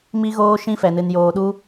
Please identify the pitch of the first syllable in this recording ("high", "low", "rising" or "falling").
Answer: high